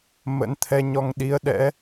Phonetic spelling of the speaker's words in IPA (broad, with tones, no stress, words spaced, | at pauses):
mə̰˧˥nt̪ʰɛ˧ɲɔ˧ŋ ɗi˨˦ə̯ɗɛ̰˧˥